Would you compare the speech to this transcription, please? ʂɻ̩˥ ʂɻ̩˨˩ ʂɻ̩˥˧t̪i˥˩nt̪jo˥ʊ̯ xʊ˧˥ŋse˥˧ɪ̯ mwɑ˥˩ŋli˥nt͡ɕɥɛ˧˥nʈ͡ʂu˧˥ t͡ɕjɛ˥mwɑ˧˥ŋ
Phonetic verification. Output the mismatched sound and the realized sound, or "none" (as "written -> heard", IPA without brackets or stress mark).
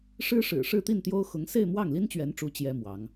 none